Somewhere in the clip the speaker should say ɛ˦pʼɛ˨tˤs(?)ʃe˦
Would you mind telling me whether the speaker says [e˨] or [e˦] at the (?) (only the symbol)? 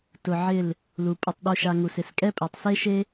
e˦